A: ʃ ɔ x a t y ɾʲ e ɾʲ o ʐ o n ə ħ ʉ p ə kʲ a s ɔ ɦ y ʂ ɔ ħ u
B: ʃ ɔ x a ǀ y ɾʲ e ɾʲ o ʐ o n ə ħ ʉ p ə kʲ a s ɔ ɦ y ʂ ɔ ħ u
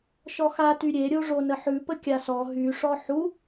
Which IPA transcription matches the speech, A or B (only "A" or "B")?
A